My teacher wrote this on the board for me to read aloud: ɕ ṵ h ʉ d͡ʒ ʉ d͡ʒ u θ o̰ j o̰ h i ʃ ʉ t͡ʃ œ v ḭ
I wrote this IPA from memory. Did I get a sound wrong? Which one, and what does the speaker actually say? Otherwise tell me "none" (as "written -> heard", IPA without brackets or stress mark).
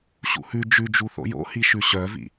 t͡ʃ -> ɕ